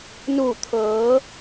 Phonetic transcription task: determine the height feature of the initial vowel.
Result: high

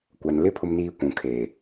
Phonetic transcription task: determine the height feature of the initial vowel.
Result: low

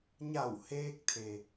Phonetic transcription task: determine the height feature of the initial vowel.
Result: low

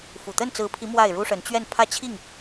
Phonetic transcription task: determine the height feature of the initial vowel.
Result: high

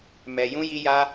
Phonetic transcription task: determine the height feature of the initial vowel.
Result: mid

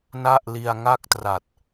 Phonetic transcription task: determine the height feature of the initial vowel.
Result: low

